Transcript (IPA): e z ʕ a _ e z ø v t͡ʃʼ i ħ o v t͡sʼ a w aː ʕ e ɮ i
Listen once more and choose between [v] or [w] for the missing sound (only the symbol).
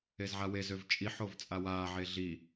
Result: w